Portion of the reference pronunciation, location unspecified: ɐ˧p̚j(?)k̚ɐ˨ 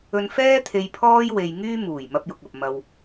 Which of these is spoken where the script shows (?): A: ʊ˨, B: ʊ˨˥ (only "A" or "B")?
A